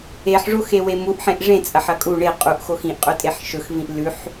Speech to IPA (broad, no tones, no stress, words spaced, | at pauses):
eħʐoxewe muʔħẽʔ ʐẽt͡sʼɐħɐ kʼu ɳeqʼuʔxox ĩʔqʼɵtʼeħ ʃɵxvĩʔ lʉħ